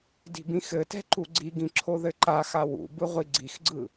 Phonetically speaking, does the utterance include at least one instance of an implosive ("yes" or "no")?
no